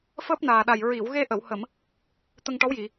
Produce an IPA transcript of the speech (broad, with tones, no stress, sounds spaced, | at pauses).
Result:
f əː˦˥ p̚ n aː˨˩ ɗ a˨˩ j ɹ i˨˩˨ w ɣ e˧ ʔ ə˨˩˨ w h ə˨˩˨ m | t̪ ə˧ ŋ ʈ ɔ˧˥ w j i˨˩˨